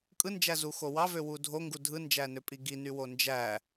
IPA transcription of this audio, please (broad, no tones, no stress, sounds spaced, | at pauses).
kʼ ɯ n d͡ʒ æ z u x o w ɑ v ø w u dʱ o ŋ ɡ u dʱ ɯ n d͡ʒ æ n ø pʼ i ɡ i n y w o n d͡ʒ æ